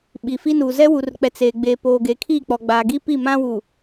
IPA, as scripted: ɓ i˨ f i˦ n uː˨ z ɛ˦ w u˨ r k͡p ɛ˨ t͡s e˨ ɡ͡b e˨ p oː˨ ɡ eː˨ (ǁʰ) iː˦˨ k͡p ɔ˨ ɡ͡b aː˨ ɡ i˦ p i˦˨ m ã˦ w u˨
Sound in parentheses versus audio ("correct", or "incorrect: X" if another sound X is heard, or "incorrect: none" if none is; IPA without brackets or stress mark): incorrect: kʰ